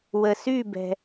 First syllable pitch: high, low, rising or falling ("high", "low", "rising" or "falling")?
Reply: low